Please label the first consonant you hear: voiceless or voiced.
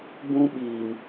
voiced